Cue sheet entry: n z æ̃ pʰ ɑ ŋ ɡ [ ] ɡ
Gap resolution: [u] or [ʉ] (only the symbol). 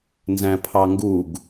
u